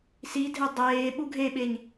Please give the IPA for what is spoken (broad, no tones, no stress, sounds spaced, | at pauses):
s i dʱ e dˤ eː ɓ u ɡʱ e ɓ e ɲ